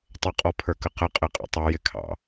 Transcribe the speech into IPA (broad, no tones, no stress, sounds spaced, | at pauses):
tˤ ə qʼ ɔ pʰ ə˞ k ə q ə qʼ ɪ qʼ ə̰ tˤ ɑ j ɪ kʰ ɑ̰